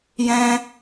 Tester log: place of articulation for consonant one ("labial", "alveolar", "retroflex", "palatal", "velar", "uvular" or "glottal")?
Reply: palatal